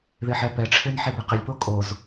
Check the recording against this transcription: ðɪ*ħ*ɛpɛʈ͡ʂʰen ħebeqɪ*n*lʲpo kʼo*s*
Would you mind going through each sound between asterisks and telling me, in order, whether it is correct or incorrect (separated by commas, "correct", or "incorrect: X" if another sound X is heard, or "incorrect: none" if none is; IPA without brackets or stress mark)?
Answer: correct, incorrect: none, incorrect: z